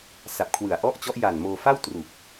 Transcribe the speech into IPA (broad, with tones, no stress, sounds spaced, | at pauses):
s a˨˩ p̚ kʰ w ɯ˨˩ a̯ ʔ ɔ˥˩ ʔ t͡ɕ ɔ˦˥ ʔ j a˨˩ n m oː˧ f a˥˩ w t r u˨˩ k̚